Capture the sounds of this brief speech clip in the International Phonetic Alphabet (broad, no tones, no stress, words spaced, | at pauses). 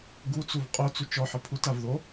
ɡut͡suv qʼot͡su t͡ʃɔħɪ pʰutavðo